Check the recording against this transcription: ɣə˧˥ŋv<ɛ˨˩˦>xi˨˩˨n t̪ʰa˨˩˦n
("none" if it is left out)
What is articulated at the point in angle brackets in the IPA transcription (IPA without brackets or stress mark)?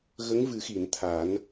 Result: ɨ˨˩˦